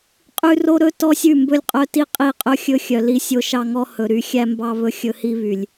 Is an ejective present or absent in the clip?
present